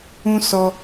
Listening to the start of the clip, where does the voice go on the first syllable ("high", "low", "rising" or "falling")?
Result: high